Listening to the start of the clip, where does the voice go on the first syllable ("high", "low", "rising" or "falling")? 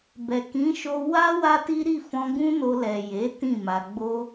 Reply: low